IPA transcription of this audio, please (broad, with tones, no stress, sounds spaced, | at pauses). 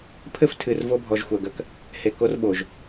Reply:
pʰ ɘ˦ f tʰ ɨ˨ r v o˦ bʱ ɔ˨ ʒ xʷ ɐ˨ ɡ ɐ˦ k | h e˨ k o˦ r ɓ o˨ ʒ